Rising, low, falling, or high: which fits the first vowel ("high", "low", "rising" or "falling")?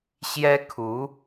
high